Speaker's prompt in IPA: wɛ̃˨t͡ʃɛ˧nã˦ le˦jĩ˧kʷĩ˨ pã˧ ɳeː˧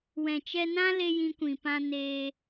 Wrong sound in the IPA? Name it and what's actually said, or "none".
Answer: ɳ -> n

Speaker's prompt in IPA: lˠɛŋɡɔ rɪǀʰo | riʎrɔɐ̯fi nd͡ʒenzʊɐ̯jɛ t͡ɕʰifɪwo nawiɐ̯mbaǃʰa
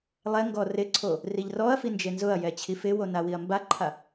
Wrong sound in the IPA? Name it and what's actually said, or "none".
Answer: none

